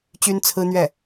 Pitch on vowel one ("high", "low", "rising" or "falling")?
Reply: high